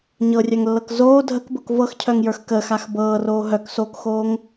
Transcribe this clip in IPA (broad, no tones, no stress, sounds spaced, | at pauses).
ɲ ɤ rʲ œ ŋ lː ɤ k z oː dʱ ə k b ɤ k v ɤ x cʰ œ ŋ j ə˞ x k əː x a x b ɤː r oː ɦ œ k s oː k x oː ŋ